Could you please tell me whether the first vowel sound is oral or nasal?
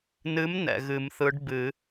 oral